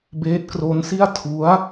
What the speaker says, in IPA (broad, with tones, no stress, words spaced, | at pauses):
beː˦˥t̚kro˦˥nsi˥˩a̯ tʰu˦˥a̯